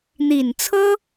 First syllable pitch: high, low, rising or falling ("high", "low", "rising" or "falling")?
low